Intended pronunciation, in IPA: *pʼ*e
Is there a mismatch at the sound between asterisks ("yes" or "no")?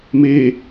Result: yes